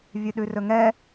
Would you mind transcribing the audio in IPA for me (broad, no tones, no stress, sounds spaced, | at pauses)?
vʲ ʉ ɗ ʉ r ɵ ŋ ɛ